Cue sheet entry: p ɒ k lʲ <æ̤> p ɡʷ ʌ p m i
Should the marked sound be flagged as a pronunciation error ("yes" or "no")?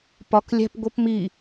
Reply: no